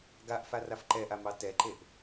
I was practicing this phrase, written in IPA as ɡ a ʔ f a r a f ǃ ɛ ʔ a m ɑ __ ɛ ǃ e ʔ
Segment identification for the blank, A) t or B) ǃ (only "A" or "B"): A